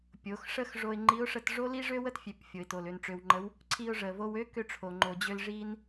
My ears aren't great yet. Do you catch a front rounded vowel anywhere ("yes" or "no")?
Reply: yes